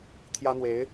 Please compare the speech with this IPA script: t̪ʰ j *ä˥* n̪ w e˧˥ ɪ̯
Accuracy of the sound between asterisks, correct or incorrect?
correct